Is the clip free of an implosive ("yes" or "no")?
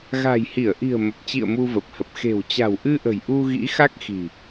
yes